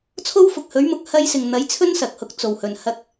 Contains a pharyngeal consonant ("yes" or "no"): no